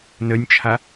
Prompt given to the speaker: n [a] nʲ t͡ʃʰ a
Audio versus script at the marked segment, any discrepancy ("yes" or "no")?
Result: yes